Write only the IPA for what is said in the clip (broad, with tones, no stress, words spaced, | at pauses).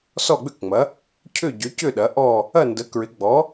sɔ˥˨ɡ͡bʏ˥˨kŋ͡mɐ˩˥ | cʰʏ˥˨ ɟʏ˩˥cʏ˥˨ ɗɐ˩˥ʔɔ˥˨ | ɐ˥˨ndə˩˥kɹɪ˩˥ɡ͡bɔ˩˥